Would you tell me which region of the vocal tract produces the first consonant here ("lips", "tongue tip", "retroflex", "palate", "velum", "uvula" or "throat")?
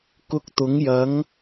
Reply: velum